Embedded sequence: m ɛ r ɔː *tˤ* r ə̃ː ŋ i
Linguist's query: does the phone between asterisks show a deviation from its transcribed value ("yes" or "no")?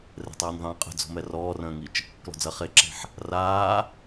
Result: yes